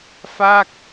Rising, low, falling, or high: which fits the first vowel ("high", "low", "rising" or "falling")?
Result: falling